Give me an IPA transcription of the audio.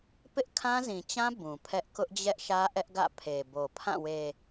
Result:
pɪ˦ʔkʰã˦zĩ˨t͡ɕã˦ bũ˨pʰɛ˦ʔ kʊ˦ʔd͡ʑɛ˦ʔʃä˦ ʔɛ˦ʔɡä̰˦˨ pʰe˨bo˨pʰã˦˨ we˨

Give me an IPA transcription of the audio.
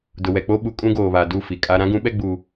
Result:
dʊ˨wɛ˨k͡po˦ ɓu˨kʼũ˦ɡoː˨βa˨ du˦˨ fi˨kʼa˦ ɾã˦ɡũ˨˦ɓɛ˦ ɡ͡bu˦

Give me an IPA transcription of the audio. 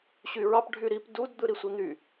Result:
ɕyɹɑp ɖʱyɾip dud d̪ɯɾisʷin̪y

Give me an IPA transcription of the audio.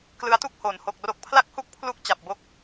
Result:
klɯ˦˥a̯tu˥˩k̚ hoː˩˦nho˨˩k̚ro˦˥k̚ pʰla˥˩k̚hu˥˩k̚ pʰlu˥˩k̚ t͡ɕa˨˩p̚bo˦˥k̚

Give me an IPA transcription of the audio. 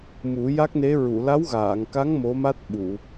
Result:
mu˨˩˦ ja˦˥k̚ne˧˥ ɹu˨˩˨la˧˥wɣaː˨˩˨ŋka˧˥ŋ mo˧˥ma˦˥t̚ɓu˨˩˨

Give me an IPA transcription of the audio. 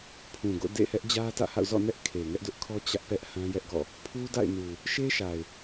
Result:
pʰũ˨ɡo̰˦˨ dḛ˦˨hɛ˦ʔ d͡ʑä˦tä̰˦˨ha̰˦˨ʊ̯ zɔ̰˦˨nɛ˦ʔ kʰe˨ŋɛ˦ʔdʊ˦ʔkʰɔ˦ t͡ɕä˦ʔpɛ˦ʔ hã˦jɛ˦ʔɡɔ̰˦˨ | pʰu˦da̰˦˨ɪ̯nu˨ | ʃe˦ʃa˨ɪ̯

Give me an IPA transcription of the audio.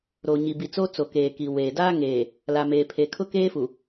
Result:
ɾo˨ɲi˨bi˨t͡so˦ t͡so˨keː˨ki˨ weː˨ daː˦ŋeː˨ | la˨meː˨pʰe˨ kʰʊ˦keː˦fu˨

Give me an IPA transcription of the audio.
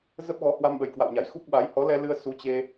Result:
zə˦˥p̚ɣɔ˨˦ hwa˧mɓə˨˩jkwa̰˧˨wɲa˧˩j xu˦˥k̚ɓa˨˦j hɔ˨˦lɛ˧lɨ˧ə̯ su˨˦t͡ɕe˧

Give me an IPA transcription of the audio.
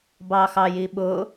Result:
bɑxɑjiɓʊ

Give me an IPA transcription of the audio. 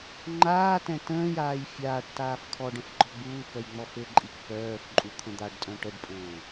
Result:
ŋ͡ǃaːtɛ̃ tə̃ːjaːj fʲaːʈ taːfkʰɔɖə̃f ɡ͡ǃɔɡ͡buːkœj ŋ͡mɔfɘǃʼik pœːf ǃʼut̪ʰə̃d̪aɖtʼœ̃ ʈəɖpʼə̃ː

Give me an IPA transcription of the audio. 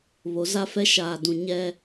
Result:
βo˨˦za˦fɛ˦ ʃaː˨dũ˨ ɲɛ˦

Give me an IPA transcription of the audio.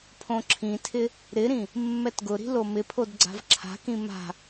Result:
pʰõǁʰĩtʰɪ | ɾɪɾĩ | mːɛtɡʊɾi̤ lomɪpʰod ɡ͡ǀa̤vǁʰa̤kĩ ma̤

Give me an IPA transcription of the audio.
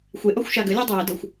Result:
xʷeʔɔxʷ ʃaɡəlʲe dˤɐjədɤxʷ

